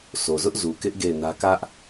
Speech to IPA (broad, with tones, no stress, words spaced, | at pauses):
so˨zʊ˦ʔ zu˨kɪ˦ʔ ɡe˦˨ɪ̯nä˦ kä˦ʔ